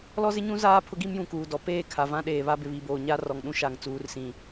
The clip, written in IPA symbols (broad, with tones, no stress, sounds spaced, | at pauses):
l ɔ˦ z ɪ˦ ɲ ũ˦ z aː˦ pʰ ʊ˦ ɡ i˦ m j ũ˨ k uː˨ d ɔ˨ p eː˦˨ kʰ a˨ v ã˦ ɗ eː˨ β a˦ b ɪ˨ β i˨ b oː˨ ɲ a˦ r ɔ˨ ŋ ɗ ũ˦ ʃ a˨ ŋ t͡s uː˨ r s ĩ˨